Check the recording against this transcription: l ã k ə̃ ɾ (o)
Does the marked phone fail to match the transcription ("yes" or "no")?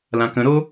no